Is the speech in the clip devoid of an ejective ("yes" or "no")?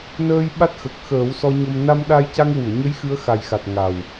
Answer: yes